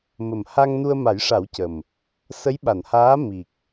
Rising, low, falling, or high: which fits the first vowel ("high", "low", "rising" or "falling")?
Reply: low